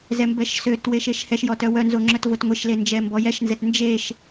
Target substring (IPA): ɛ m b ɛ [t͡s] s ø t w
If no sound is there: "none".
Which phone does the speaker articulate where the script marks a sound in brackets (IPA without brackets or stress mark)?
ʃ